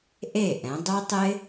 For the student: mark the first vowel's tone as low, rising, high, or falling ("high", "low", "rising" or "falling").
falling